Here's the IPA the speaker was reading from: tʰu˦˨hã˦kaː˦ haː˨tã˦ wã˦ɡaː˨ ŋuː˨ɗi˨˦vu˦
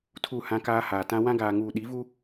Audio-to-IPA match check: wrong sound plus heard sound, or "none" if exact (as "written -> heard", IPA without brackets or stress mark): none